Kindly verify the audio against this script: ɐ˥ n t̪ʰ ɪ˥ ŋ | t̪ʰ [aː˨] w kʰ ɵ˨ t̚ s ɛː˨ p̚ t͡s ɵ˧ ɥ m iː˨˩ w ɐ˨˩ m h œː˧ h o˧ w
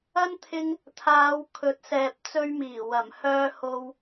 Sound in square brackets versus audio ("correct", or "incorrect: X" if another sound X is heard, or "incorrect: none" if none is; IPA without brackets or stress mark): incorrect: aː˨˧